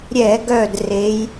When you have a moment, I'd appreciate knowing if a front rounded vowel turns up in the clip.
yes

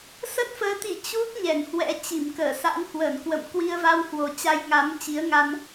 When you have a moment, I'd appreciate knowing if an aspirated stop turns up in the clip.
no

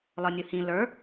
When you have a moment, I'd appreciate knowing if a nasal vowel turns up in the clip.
yes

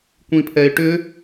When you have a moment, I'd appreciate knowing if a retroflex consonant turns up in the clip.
yes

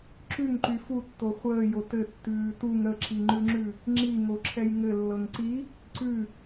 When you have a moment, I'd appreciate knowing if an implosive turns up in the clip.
no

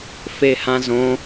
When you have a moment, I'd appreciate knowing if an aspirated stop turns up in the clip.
no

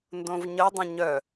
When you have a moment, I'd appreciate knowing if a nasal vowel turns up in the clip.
yes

